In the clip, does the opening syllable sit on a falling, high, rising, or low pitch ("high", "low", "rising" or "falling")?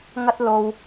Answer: high